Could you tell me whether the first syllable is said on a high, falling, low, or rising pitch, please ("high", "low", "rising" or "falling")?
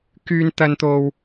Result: high